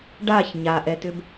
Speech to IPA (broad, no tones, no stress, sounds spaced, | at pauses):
ɖ a ç ɲ a ʔ ɛ t ʏ b